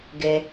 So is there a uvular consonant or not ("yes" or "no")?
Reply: no